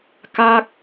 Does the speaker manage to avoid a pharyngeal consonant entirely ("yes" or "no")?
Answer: yes